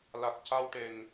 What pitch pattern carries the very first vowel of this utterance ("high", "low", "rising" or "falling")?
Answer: low